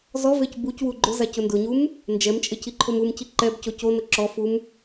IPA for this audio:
z ɔ v e c b u c w u ɡ͡ǃ ʊ z a c ʊ n d ʊ ɲ u m | n d͡ʒ ɛ m t͡ʃʼ e c i ǃʰ o m u m c i ǃ ɛ b c o c o n ʊ ǁ ɔ f u m

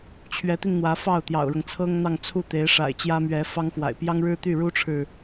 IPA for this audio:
t͡ɕʰ ɥ ɛ˧˥ t̪ i˧ ŋ n̪ w ä˧˥ f ɑ˥˩ ʊ̯ t̪ j ɑ̰˨˩ ʊ̯ ɻ ɤ˦ ŋ t͡sʰ ɤ˥ ŋ n̪ ɑ˥˧ ŋ t͡sʰ u˥˩ t̪ e˧˥ ɪ̯ ʂ a̰˨˩ ɪ̯ t͡ɕ j ä˥ m ɥ ɛ˧˥ f ɑ˥ ŋ x w a̰˨˩ ɪ̯ p j ɑ˥ ŋ ɻ ɻ̩˥ t̪ y˥˩ ɻ u˥ ʈ͡ʂʰ ɻ̩˨

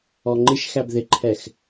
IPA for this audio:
ɔ ŋ͡ǃ ɪ ʃ x æ b ð ɪ ǃʰ ɛ x

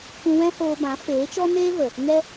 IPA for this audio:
kʷ ũ˧ w ɛ̃˦ h oː˧ b ã˨˦ f eː˨˦ t͡ʃ ɔ˦ n eː˦ v ə˨ | ŋ ɛ˦

